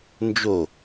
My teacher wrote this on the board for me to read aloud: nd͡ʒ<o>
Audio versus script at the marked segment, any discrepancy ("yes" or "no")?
no